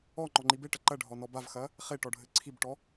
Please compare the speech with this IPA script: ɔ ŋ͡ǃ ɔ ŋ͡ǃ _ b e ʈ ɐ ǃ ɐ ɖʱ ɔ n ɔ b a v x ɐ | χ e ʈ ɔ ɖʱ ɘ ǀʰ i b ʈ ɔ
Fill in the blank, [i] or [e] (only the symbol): i